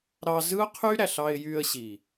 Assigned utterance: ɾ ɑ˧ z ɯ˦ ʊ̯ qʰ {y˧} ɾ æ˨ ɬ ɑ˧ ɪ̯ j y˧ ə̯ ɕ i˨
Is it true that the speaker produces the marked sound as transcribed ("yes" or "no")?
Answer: no